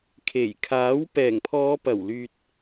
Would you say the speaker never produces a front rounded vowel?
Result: no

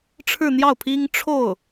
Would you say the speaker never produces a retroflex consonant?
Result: no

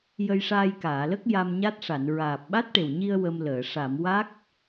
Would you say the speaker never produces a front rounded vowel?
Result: yes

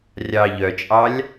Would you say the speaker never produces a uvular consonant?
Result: yes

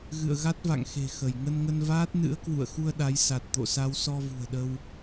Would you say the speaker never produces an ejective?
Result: yes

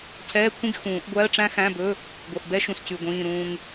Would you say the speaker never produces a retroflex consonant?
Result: no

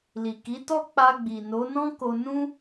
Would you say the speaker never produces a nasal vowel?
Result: no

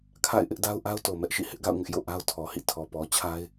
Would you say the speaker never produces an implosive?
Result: yes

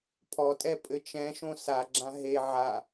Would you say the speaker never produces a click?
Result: no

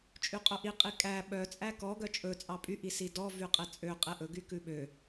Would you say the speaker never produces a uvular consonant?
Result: no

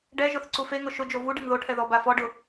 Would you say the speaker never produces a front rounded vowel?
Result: yes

